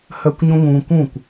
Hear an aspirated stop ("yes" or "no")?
no